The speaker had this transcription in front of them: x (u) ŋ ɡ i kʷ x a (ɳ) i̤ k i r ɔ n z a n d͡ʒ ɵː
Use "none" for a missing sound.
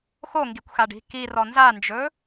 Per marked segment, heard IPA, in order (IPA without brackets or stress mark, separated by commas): o, ɖ